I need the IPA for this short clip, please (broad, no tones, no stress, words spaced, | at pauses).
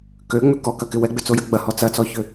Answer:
køŋ͡mʏ kɔkɐkɪ wɛɡ͡bʏt͡sojɐ ɡ͡bɐhɔ t͡sɐt͡sɔçʏ